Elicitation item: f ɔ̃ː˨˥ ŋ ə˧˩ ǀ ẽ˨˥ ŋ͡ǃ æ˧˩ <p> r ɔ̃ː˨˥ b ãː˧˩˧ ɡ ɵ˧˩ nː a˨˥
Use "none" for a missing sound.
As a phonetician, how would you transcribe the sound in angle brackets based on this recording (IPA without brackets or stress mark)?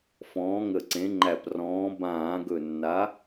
p